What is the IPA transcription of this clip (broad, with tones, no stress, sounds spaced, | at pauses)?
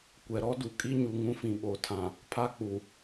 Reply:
kʷ ɛ˨ ɾ ɔ˦ d u˨ kʼ i˦ ɲ u˨ ŋ ũ˦ f ĩ˨ ɓ o˨ tʰ ã˨ | pʰ a˦ k͡p u˨